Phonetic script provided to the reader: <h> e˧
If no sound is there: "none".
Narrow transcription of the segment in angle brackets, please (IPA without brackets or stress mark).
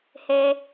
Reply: h